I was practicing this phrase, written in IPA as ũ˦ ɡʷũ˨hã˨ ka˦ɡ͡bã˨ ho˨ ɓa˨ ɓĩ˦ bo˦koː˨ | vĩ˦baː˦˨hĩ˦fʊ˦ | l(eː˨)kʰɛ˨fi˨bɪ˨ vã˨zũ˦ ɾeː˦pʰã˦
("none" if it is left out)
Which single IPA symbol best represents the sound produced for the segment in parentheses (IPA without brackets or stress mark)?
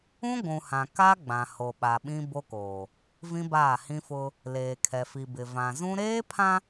eː˨